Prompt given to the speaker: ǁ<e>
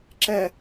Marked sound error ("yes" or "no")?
yes